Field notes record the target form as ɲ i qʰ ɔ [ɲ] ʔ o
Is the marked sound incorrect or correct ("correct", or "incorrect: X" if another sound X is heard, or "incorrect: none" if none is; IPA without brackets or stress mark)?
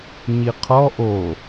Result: incorrect: none